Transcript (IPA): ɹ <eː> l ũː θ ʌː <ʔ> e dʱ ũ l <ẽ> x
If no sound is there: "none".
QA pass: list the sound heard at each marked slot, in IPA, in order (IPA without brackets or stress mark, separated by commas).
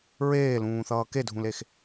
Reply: eː, k, e